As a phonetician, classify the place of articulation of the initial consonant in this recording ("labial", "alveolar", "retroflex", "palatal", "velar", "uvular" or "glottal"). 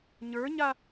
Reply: palatal